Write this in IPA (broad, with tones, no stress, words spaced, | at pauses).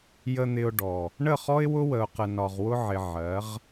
jə˨n̪ɪ˨ʊ̯ ɖɔ˨ | ɳə˦˨χɔ˦ɪ̯wʊ˦ wə˨ʊ̯qə˨ nɒ˨ʁwʊ˦ʕɪ˨ ʕɜ˨˦ʁ